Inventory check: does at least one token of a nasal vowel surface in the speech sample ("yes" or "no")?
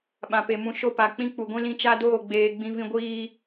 yes